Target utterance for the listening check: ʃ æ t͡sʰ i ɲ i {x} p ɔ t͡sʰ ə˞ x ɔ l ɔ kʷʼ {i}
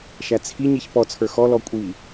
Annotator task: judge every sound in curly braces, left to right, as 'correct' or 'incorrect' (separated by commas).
incorrect, correct